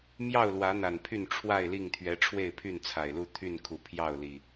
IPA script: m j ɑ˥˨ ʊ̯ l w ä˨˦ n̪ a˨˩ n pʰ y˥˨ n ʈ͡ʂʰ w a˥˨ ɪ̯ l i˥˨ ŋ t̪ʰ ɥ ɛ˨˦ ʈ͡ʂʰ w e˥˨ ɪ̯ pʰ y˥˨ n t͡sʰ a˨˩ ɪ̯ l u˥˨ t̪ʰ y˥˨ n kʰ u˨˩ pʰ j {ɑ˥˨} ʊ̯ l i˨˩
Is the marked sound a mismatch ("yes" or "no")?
no